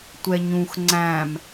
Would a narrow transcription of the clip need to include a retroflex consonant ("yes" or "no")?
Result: no